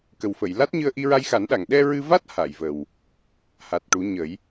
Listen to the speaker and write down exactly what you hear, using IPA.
k ə˨˩ w f ə˨˩˨ j l a˦˥ t̚ ɲ ɨ˧ ə̯ ʔ i˧ ɹ a˧ j x a˨˩˦ n ɗ a˨˩˨ ŋ ɗ ɛ˧ ɹ ɨ˧ v a˦˥ t̚ h a˨˩˨ j v ə˨˩ w | h a˨˩ t̚ ʈ u˨˩˦ ɲ ə˨˩˦ j

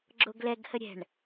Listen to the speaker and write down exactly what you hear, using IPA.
ɡ͡ǁ o ɡ l ɛ ɡ h ə ɾʲ ɛ̤ ɳ

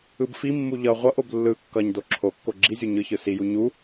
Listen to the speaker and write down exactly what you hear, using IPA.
ɯ b f i mː u ʎ ʌ ʁʷ ʌ ʔ o b lː ɯ kː ʌ ɲ d o ǁʰ o kː o ɡ͡ǁ i zʲ u ɲ ɯ ç ɯ s i j u ɲ u

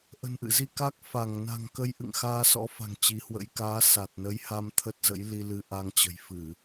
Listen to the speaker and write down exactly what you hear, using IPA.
ʔ ə̤˨˩ n ʔ ɨ̰˧˨ z i˧ k a˦˥ k̚ f a˧˩ ŋ n a̤˨˩ ŋ k ə˧ j ʔ ɨ̰˧˨ ŋ x aː˧ s ɔ̰˧˥ f a̤˨˩ ŋ t͡ɕ i˨˦ h w ə̰˧˥ j k aː˨˦ s a˨˩ t̚ n ə˨˦ j h a˧ m t̪ʰ ə˦˥ t̚ z ə̰˧˥ j l i˧ l ɨ˧ ʔ a˧ ŋ t͡ɕ ə̤˨˩ j f ɨ˧˩˨

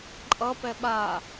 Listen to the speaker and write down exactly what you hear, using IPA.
ǃʼ ʌ p ɛ ɓ a

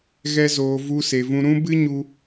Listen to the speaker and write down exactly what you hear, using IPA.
ɣ ɛ˦ z oː˧ v u˦ s e˧ v ũ˦ ɾ ũ˦ b ɨ˦ ɲ u˧

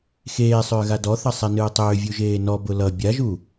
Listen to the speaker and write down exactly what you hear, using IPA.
x eː sˤ ʏː ɣ a d ɔ θ ʌ sˤ e n ɨː tˤ ʏː vʲ u ʒ eː n ɔ b ʊ l ʌ bʲ a ʒ u

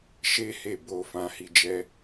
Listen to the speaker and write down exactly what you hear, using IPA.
ʃ e˦ h e˦˨ b o˧ f ã˧ h i˧ d͡ʒ ɛ˦

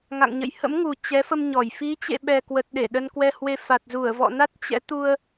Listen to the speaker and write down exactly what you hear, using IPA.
ŋ a̰˧˨ ŋ ɲ ə̰˧˨ j h ə̰˧˥ m ŋ u˨˩ t͡ɕ ɛ˨˦ f ə˧ m ɲ ɔ˧˩ j f i˨˦ t͡ɕ ḛ˧˨ ɓ ɛ˨˩ k w ə˨˩ t̚ ɗ e˧˩ ɗ ə˧ n k w ɛ˧ h w e˧ f a˨˩ t̚ z u˧˩ ə̯ v ɔ̰˧˨ n a˦˥ t̚ t͡ɕ ɛ̰˧˥ t̪ u˧ ə̯

